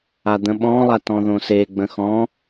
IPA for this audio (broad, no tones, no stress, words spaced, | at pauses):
ad̪ə̃ɓɔ̃lˠa tɔ̃ðõseɡ͡bə̃ xɔ̃